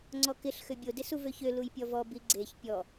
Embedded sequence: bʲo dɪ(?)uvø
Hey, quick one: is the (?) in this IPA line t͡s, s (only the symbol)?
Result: s